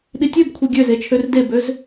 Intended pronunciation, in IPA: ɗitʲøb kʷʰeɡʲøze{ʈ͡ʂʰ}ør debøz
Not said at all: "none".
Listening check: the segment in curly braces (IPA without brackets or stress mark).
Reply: t͡ʃʰ